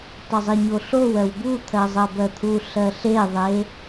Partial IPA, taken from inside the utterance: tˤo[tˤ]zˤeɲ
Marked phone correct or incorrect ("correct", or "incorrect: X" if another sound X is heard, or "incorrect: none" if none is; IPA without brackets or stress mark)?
incorrect: none